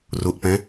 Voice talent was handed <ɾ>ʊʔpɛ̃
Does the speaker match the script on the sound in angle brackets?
no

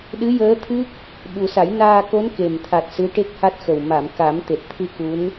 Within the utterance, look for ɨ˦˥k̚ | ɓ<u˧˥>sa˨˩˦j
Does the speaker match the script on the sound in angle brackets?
no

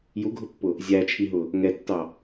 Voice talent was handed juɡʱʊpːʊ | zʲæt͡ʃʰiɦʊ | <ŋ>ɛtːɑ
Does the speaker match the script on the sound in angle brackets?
yes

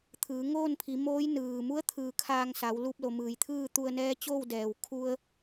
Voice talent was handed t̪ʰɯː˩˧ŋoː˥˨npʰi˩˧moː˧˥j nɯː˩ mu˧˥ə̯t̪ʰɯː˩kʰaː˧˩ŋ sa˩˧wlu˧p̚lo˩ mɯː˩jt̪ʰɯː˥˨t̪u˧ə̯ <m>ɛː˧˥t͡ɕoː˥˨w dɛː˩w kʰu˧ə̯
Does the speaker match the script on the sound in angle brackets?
no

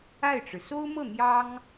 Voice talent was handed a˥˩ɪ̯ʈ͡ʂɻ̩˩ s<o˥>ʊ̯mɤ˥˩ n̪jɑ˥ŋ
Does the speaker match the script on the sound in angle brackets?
yes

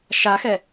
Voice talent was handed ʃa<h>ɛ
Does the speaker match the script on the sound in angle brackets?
no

